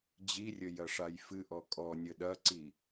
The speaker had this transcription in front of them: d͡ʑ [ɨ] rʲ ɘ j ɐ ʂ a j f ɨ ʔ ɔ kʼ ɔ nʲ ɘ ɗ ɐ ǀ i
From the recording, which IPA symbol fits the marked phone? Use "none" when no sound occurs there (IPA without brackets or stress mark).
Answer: i